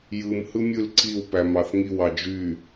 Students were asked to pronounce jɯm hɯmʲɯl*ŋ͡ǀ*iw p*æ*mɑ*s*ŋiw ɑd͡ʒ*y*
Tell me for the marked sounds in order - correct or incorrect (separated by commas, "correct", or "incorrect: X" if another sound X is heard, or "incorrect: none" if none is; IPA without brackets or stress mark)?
incorrect: ǀ, correct, incorrect: θ, correct